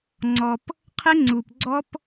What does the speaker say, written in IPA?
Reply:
ŋ͡ǀɔ˨p | qʰɪ˦ŋ͡ǀu˨p ɡ͡ǀɔ˦p

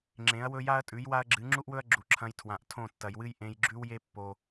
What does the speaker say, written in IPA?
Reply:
ŋ͡ǁẽ˨˦ɐ̯wɵ˦ ja˦ɐ̯tʼʉ˨˦j wa˦ɐ̯ɡ͡ǁɨ˨˦ ŋ͡ǁu˦ʔwɵ˦ɐ̯ ɡ͡ǁu˨ǁʰɐ̃˧j tʰwã˨ʔtʰõ˦˨ tːɐ˨jwɨ˦j ʔẽ˧jɡ͡ǁʉ˦wje˦ pːo˦

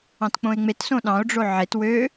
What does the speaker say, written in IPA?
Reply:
ɑ̃tk͡põe̯ŋ͡met sõɗɑ̃o̯ ɖ͡ʐoʕet wø

